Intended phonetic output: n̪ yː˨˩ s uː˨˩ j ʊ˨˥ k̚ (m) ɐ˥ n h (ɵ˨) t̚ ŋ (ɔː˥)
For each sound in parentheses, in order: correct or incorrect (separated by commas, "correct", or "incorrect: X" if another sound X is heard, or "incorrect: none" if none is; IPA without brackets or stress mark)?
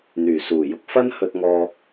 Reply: incorrect: f, incorrect: ɵ˧, incorrect: ɔː˧